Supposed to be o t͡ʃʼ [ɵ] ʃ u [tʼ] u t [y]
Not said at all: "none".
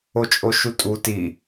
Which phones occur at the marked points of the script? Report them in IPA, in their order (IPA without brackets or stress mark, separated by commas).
o, tʼ, i